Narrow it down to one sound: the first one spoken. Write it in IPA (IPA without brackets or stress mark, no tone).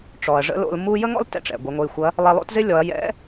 ʈ͡ʂ